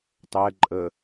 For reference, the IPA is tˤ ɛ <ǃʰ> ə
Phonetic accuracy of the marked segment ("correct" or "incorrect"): incorrect